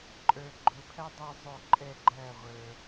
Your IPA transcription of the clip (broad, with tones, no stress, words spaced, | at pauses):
ǃʼə˞˧ɡ͡ǃʊ˧pʰæ˥ dˤɛ˧zˤʊ˧˩ ǃʼɛ˥˧ɡ͡ǃæ˥˧ʁʷə˞˧